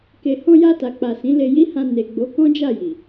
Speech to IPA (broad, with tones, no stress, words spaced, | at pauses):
ke˧ hɔ̃˧ja˧ta˨k͡pa˨ sĩ˨˦le˧ji˦hã˧ ne˨ ɡ͡bo˨˦kɔ̃˦d͡ʒa˦˨ ji˨